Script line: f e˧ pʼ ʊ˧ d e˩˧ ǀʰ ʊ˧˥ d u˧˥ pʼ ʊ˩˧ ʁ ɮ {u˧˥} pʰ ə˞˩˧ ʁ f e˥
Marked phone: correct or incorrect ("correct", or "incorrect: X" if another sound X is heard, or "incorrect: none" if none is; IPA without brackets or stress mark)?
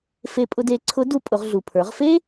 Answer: incorrect: u˩